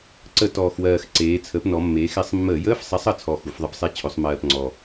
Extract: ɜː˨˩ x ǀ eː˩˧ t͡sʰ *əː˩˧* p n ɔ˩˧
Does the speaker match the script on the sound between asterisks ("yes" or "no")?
no